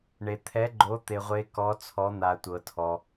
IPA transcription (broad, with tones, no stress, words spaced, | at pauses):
ɳe˩ t̪ʰɛ˩˧ɡ͡ǃo˩˧ t̪e˩ʁʷe˩˧ kɔ˩˧t͡sʰɔ˩˧n̪a˩ tʷɤ˩tʰɔ˩